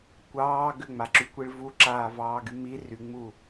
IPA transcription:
kʷ ɑː ɡ ʏ ŋ͡m a ǁ y kʷ i ɭ v u ǁ aː v ɑː ɡ y m i r y ŋ͡m u

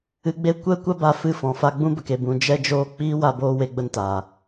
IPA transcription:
ɨ˧ ɡ͡b e˦ kʷ ɛ˦ kʷ a˦ b a˧ f ɨ˦˨ f ɔ̃˨ f a˧ ɡ͡b ũ˦ b ə˨ k e˨ b ũ˨ d͡ʒ ɛ˧ d͡ʒ oː˧ k͡p iː˦ w a˧ b oː˧ w e˧ ɡ͡b ə˧ n t aː˨

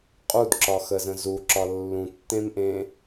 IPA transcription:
qʼ u d ǁ ɒ x ə z ə̃ z u ǁ ɒ lː ũ tː ẽ m ʔ ẽ

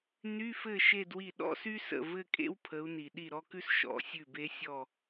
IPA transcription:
n y˧˥˧ f ɘ˥˩ ʃ e˥˧ d w i˥˩ ɗ ɔ̰˥˧ s y˥ s ə̰˥˩ v ɘ˥˧ kʼ ḛ˥ w pʰ ə˨˦ u̯ n i˨ ɗ i˥˩ ɾ ɔ˥ k ʉ˥ s ʃ ɔ̰˧˥˧ sʲ ʉ˥˩ b e˥ sʲ ɔ˥˧

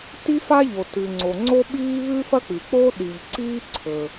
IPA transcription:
t i˥ f a˥ ʎ o˩ t ʉ˩ ŋ͡ǀ o˩ ŋ͡ǀ o˥ ɓ iː˥ β ʉ˥ f ɐ˥ k͡p ɨ˩ k͡p o˥ ɗ i˩ ʎ ǀ iː˥ ǀʰ ɵ˩

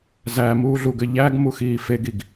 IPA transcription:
z æ m uː ɮ u ɡ ɘ ʎ æ ɡ m u x iː f e ɡ i ɡ

